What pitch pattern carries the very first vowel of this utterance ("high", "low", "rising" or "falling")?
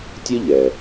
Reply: high